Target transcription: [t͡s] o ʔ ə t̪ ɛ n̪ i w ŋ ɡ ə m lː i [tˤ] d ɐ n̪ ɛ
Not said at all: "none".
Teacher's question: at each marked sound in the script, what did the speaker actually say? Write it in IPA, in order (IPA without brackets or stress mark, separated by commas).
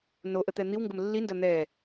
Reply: n, n